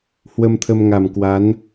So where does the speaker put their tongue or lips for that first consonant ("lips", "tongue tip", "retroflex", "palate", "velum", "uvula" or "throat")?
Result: throat